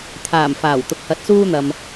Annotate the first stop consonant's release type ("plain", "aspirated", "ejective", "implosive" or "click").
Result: aspirated